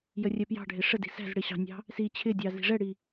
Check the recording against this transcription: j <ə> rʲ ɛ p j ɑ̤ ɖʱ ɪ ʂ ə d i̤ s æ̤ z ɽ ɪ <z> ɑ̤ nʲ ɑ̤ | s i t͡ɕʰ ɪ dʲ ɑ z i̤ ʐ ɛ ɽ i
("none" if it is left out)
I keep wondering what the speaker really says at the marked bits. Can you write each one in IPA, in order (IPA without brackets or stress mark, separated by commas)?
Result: ə, ɕ